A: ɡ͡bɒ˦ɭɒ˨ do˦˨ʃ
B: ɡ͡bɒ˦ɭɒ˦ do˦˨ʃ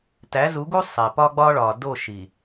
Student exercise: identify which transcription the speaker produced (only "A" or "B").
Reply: A